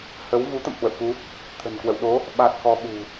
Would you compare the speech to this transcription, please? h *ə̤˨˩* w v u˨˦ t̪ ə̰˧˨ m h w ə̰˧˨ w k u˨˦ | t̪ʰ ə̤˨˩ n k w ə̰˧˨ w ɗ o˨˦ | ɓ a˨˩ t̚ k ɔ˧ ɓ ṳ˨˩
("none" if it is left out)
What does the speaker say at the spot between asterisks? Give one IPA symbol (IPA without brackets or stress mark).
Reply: ə˨˦